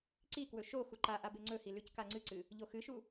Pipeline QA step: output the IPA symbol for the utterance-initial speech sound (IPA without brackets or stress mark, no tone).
ǀ